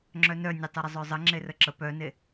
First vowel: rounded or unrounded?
rounded